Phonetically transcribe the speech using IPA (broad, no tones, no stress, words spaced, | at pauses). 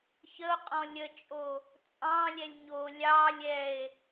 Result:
çəo̯qʼɔ̃ lʲət͡ʃʼo | t͡sʼɑ̃lʲɛlʲ ɲo lʲɑ lʲɛe̯